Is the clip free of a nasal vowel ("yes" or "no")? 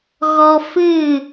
yes